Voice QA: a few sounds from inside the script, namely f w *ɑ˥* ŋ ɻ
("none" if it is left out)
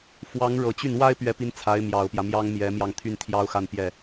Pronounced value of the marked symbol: ɑ˧˥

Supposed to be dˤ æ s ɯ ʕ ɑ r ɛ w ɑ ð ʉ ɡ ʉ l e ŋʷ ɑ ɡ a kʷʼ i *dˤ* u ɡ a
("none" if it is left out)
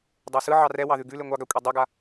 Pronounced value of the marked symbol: dˤ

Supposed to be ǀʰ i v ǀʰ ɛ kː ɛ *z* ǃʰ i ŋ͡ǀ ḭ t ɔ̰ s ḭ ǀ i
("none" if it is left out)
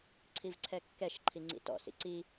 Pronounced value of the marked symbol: ʃ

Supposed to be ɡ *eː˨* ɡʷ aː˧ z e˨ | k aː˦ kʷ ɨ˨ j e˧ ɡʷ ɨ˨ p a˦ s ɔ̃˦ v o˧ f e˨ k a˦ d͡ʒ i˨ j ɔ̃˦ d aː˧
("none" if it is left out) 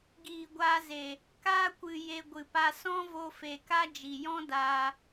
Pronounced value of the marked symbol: iː˨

